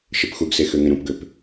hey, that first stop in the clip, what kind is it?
plain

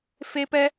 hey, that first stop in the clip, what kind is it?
plain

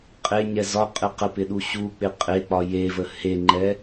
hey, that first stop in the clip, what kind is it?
ejective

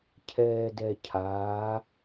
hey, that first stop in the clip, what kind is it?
aspirated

